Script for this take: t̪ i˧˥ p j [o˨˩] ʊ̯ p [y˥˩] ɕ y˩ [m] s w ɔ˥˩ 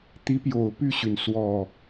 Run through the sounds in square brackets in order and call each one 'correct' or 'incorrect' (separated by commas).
correct, correct, incorrect